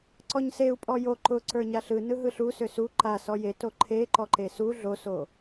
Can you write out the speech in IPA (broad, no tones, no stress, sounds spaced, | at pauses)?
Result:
ǀ ɔ ɲ s e u̯ pʼ ɔ j o ǃ ʊ ǀ ə˞ ɲ a ɬ ɯ n ɯ ɦ ɯ ɬ u s ʏ s u ǃ a s ɔ j e t o ǃʰ e ǃ ɔ ǃ e s u ɮ o s o